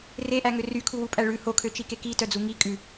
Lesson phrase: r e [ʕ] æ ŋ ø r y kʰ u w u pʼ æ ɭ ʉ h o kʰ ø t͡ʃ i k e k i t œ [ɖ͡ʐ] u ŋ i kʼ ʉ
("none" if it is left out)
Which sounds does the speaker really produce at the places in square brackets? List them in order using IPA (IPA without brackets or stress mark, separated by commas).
ʔ, d͡z